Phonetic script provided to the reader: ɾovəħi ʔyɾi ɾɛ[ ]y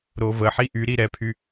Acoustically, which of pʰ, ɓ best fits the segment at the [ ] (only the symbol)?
pʰ